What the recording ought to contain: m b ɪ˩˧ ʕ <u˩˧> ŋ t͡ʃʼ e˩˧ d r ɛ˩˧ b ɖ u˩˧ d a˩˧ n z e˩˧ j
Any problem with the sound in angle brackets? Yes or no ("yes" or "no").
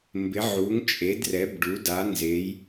no